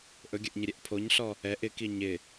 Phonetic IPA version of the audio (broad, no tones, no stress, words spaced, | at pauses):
ʔɵɡʲəʔɲɪɾʲɛʔ pʰoɲɬɔ | ɛʔ ɪki ɲɪ